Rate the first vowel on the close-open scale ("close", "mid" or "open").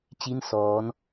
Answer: close